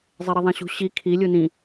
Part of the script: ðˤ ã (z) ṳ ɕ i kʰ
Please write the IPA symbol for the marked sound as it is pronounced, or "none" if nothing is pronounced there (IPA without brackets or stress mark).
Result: ɕ